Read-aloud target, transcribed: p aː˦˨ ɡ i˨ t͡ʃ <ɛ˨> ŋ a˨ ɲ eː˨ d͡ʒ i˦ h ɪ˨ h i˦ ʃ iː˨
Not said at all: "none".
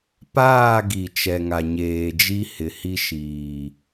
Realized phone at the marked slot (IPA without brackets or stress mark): ɛ˨